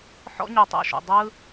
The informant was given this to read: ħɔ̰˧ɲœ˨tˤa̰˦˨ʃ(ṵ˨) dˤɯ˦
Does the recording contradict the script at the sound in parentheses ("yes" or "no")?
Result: no